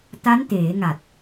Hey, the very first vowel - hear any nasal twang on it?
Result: no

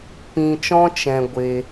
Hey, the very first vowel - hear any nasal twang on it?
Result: yes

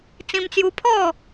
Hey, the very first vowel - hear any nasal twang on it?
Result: yes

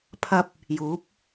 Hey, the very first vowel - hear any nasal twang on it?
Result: no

